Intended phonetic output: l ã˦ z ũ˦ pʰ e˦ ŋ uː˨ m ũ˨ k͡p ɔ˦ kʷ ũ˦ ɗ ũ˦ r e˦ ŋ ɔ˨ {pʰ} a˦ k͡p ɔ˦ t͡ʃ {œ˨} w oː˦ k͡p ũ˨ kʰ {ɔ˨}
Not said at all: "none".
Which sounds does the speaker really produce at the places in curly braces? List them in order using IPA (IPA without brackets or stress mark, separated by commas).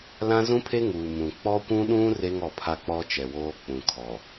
pʰ, ɛ˨, ɔ˨